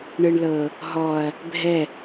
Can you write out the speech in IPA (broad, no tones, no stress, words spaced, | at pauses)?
ɳɯɳlɤ | ɦɔɐ̯ | bʱɛ